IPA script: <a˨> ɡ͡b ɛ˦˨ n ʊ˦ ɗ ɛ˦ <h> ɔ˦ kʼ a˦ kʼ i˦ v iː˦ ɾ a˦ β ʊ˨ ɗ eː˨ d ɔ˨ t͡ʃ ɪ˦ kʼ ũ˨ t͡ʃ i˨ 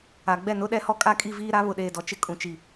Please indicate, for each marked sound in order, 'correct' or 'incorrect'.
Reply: correct, correct

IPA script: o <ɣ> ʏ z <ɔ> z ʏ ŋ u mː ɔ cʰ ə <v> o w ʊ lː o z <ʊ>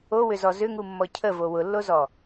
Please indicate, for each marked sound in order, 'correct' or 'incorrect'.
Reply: incorrect: w, correct, correct, incorrect: ɔ

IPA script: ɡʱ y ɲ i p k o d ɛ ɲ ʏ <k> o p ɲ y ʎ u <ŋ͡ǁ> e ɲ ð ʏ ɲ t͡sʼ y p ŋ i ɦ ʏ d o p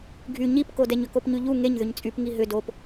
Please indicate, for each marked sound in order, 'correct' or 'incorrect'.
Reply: correct, incorrect: ŋ

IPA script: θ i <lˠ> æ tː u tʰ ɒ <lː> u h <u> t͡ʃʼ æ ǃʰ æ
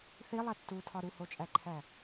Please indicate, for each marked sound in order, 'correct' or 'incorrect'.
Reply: correct, incorrect: ɾ, incorrect: o

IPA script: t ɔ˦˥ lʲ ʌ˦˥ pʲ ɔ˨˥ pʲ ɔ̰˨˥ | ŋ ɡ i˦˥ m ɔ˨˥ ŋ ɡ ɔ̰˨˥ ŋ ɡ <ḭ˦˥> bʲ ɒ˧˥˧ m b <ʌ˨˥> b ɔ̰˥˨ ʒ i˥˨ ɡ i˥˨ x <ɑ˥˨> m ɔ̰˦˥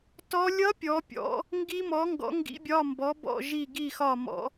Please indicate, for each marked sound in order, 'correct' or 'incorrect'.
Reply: correct, incorrect: ɔ˨˥, incorrect: ɒ˥˨

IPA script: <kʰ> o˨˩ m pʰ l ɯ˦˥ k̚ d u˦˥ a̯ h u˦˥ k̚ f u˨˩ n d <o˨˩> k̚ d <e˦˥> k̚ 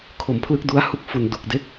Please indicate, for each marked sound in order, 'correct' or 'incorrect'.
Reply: correct, incorrect: u˨˩, correct

